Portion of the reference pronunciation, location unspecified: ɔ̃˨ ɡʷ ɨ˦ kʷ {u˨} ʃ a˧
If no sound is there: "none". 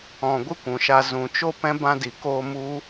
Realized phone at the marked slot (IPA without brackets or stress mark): ũ˨